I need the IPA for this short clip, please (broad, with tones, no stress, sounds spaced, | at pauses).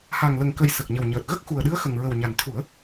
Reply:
h a˨˩ ŋ l ə˨˩ ŋ k ə˨˩ j s ə˨˩ k̚ ɲ ə˨˩ w ɲ əː˨˩ t̚ ɣ ə˦˥ k̚ x u˨˩ ə̯ ɗ ɨ˧˥ ə̯ x ə˨˩ ŋ ɹ ə˨˩ w ɲ a˨˩ n t̪ʰ u˨˩˦ ə̯